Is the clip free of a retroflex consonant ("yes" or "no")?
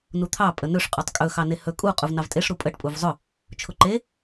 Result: no